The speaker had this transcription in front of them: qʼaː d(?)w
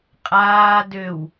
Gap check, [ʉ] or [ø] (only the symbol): ø